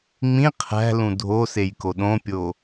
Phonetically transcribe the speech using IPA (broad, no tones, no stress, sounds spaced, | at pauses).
ŋ͡m ĩ qʰ æ̤ l ũ dʱ o s e j k o ɗ õ pʲ o